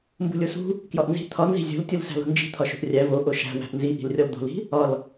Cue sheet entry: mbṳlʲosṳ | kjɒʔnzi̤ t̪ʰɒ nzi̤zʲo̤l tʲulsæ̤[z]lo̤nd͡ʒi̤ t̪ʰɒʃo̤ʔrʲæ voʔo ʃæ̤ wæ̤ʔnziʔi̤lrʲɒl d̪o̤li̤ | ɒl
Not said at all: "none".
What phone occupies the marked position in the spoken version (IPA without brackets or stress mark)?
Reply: none